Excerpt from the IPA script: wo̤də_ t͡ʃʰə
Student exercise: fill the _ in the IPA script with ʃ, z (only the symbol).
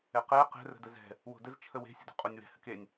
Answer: z